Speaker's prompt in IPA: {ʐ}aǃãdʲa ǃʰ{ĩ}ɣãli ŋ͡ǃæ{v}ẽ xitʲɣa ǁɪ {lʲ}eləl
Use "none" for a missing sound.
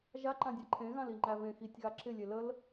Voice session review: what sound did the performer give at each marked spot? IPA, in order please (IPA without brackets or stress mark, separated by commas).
ʒ, ẽ, v, lʲ